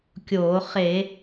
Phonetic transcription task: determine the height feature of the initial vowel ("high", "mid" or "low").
mid